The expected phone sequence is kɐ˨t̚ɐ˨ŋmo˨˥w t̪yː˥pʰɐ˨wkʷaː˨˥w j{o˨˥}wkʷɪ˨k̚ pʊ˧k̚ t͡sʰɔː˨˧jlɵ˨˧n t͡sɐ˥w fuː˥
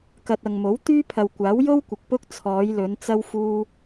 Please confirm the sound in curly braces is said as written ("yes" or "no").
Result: no